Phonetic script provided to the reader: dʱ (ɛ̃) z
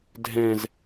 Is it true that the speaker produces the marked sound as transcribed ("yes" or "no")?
yes